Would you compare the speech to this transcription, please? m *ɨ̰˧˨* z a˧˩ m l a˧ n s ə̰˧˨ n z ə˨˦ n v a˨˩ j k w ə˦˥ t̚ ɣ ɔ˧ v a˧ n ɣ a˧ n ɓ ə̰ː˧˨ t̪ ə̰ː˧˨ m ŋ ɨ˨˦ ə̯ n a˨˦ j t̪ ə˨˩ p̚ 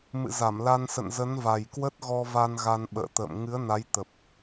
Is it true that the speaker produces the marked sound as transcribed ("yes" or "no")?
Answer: yes